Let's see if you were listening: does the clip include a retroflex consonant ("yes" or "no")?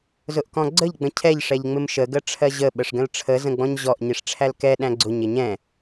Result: yes